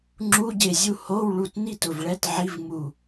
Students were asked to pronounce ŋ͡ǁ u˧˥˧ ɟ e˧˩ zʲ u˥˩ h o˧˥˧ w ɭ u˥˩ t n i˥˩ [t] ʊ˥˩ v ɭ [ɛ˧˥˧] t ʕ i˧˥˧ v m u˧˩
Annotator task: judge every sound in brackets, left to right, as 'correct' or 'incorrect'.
correct, correct

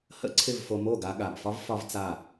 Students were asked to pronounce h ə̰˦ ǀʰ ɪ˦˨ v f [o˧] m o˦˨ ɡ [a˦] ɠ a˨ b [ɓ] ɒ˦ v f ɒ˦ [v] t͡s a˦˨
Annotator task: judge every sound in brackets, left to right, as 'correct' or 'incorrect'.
correct, incorrect: a˧, incorrect: f, correct

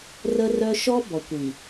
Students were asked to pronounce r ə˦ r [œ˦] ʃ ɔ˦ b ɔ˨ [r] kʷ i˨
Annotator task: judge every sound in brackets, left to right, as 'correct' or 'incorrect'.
correct, incorrect: none

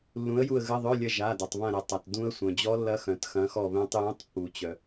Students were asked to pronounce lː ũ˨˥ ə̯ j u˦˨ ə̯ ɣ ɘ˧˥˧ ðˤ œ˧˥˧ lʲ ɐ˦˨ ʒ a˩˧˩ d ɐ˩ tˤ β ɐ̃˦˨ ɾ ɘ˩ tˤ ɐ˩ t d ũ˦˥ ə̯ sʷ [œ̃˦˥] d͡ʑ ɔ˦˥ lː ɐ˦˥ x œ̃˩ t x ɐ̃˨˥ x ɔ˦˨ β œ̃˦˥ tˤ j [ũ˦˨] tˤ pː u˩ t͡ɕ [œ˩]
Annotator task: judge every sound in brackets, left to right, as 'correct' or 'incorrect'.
incorrect: œ̃˩, incorrect: ũ˧˥˧, correct

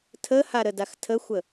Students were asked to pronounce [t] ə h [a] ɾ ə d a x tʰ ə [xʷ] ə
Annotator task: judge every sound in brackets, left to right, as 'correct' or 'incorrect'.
incorrect: tʰ, correct, correct

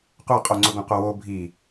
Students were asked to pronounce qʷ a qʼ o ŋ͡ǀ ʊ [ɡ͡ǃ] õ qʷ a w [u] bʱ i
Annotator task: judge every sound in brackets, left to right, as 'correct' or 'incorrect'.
incorrect: ɡ, incorrect: o

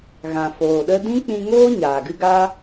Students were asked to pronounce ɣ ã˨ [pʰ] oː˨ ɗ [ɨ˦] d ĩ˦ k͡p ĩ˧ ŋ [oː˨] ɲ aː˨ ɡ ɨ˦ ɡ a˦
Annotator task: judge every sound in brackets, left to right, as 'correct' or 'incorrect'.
incorrect: f, incorrect: ə˦, incorrect: oː˦

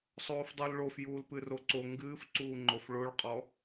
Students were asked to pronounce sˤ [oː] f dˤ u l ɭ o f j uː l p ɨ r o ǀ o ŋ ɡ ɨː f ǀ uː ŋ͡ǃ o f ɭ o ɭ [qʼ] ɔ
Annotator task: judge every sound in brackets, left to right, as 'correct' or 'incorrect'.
correct, correct

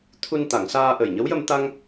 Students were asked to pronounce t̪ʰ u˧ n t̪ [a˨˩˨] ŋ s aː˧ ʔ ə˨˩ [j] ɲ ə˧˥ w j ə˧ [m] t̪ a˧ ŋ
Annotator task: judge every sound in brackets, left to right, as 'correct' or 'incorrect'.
correct, correct, correct

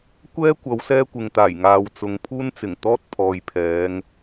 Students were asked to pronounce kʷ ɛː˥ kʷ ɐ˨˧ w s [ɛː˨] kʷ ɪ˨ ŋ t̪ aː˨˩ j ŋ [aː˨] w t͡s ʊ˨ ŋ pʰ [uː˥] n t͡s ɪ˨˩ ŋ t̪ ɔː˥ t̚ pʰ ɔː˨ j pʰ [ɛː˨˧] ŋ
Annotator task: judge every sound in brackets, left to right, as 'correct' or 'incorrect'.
incorrect: ɛː˥, correct, correct, correct

